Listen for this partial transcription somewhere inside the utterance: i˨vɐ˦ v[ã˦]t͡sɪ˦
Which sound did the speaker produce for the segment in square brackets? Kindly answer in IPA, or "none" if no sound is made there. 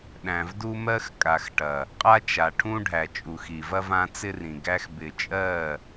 ã˦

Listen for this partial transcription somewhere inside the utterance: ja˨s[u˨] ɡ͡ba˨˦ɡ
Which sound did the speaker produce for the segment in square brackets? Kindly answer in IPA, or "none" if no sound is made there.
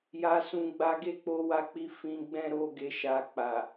ũ˨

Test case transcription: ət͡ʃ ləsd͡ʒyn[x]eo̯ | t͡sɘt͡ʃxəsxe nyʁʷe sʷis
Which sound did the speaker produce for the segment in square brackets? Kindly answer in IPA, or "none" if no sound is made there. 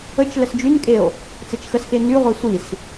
kʼ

